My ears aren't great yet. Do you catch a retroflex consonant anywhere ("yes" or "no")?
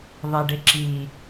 yes